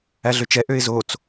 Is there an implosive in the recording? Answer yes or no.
no